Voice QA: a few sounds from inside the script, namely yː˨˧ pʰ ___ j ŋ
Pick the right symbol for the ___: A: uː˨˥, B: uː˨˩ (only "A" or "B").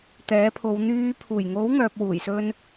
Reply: B